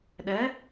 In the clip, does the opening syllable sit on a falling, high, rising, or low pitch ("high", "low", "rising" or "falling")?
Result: rising